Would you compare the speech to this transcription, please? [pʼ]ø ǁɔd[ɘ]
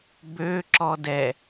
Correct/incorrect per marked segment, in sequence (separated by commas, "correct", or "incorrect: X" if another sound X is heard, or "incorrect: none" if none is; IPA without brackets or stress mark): incorrect: b, incorrect: ɛ